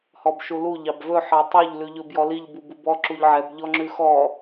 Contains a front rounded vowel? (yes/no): no